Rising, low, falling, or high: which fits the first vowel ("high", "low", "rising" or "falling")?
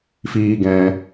high